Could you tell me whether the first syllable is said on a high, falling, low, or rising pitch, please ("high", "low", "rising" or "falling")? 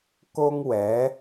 high